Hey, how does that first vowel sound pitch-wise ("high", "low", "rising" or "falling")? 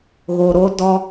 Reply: low